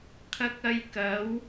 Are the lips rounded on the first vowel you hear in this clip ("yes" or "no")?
no